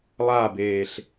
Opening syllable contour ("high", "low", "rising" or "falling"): falling